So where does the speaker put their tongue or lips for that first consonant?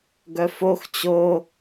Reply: velum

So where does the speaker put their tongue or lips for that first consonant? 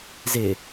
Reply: tongue tip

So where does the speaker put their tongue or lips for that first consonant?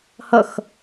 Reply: throat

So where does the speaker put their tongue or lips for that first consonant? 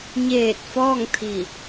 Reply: palate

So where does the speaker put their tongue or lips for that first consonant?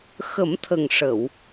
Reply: velum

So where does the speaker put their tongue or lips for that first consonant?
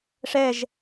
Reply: retroflex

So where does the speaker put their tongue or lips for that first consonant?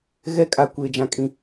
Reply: velum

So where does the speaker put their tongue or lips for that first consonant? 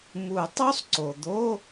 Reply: lips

